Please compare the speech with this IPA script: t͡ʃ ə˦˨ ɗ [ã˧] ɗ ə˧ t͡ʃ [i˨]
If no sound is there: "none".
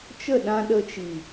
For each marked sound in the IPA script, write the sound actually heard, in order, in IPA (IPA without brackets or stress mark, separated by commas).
ã˧, i˨